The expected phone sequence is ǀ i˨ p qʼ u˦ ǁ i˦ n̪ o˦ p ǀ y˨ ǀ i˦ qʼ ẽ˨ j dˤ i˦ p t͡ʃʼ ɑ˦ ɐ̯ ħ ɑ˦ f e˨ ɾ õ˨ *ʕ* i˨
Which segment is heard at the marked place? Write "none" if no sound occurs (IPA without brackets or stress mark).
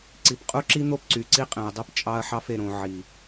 ʕ